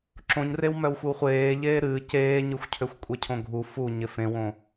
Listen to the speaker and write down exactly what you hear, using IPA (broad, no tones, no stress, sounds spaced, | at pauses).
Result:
ǁ õ ɲ r e w m œ w xʷ ɨ w χʷ eː ʎ eː ɾ ɨː c eː ɲ ɨ xʷ cʰ ø xʷ kʷʼ e cʰ õ ɡʱ u f u ɲ ɪ f ẽ w õ